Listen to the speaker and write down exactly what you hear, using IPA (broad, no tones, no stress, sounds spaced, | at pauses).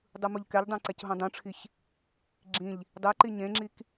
dˤ ɯ m u ʎ k ɛ ʎ dˤ ɛ̃ ǀ ɛ c ɦ ũ dˤ ũ ʈ͡ʂʰ i ç | ɡ͡ǁ ĩ ʎ | dˤ e ǃ i ɲ ẽ ŋ͡ǁ i k